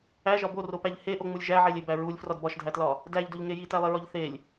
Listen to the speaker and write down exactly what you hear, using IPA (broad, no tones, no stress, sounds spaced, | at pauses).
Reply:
æ ʒ ɒ b o r o p æ ʎ h e ʔ o ŋ͡m u lʲ ʒ æ ʕ e lʲ e b æ ɹ u lʲ f r ɒ d b ɒ ʃ dʱ æ t l ɒ | d æ ʎ d o ʎ ŋ e j i t æ lˠ e ɹ ɒ ʎ θ e lʲ